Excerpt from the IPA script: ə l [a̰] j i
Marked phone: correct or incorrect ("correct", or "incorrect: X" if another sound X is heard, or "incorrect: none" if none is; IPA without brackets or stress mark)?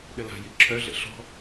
incorrect: a̤